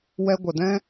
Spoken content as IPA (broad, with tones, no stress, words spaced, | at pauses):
wɛ˧ɡʷə˨dɛ̃˦